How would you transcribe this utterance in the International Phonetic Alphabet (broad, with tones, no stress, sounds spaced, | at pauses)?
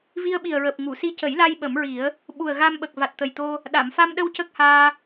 v i˧ ə̯ ɓ i˨˩ ə̯ ɹ əː˨˩ p̚ ŋ u˨˩˨ s i˧ c ə˨˩˦ j l a˧ j ɓ ə˨˩˦ m ɹ i˨˩˦ ə̯ | ɓ u˨˩ ə̯ ɣ a˧ m ɓ ə˨˩ k̚ v a˨˩ t̚ t̪ ə˨˩ j t̪ o˧ | ɗ a˨˩˨ m f a˧ m ɗ ə˧ w c ə˦˥ k̚ h aː˧